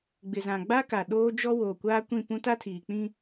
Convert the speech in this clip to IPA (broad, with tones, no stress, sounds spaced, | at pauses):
ɡ͡b ɪ˨ z ã˨ ɡ͡b a˦ k a˨ ɗ oː˦ d͡ʒ ɔ˦ w oː˨ kʷ aː˦ kʷ ĩ˦˨ p ũ˦ t a˦ tʰ iː˨ k͡p ĩ˦